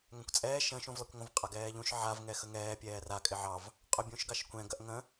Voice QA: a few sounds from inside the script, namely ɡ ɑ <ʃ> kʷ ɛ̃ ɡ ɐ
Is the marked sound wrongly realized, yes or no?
no